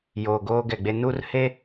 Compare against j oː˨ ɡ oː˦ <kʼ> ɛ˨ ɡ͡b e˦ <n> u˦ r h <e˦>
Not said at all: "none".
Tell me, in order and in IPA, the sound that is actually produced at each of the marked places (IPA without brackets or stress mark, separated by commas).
ɡ, n, e˦